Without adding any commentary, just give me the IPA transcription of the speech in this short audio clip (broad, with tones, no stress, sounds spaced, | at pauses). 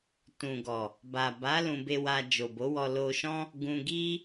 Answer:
t ũ˨ ɡ ɔ˨ | b a˨ b a˨˦ l ũ˧ b e˧ w a˧ d͡ʒ o˨ b o˨˦ w ɔ˧ l o˧ ʃ ɔ̃˦ | ɡ ũ˧ ɡ i˦